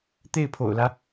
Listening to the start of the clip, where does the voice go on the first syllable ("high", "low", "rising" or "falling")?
falling